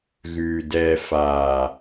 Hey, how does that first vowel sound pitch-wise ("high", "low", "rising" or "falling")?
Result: low